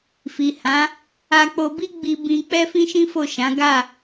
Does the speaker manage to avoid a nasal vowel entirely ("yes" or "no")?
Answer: no